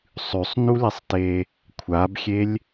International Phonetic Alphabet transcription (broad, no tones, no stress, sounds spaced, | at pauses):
sˤ ʉ sˤ n u l i sˤ t e | kʷʰ a b xʲ e lʲ